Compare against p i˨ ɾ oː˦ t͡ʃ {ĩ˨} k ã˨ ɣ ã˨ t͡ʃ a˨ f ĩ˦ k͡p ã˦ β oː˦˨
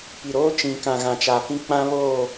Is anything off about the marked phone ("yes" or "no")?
no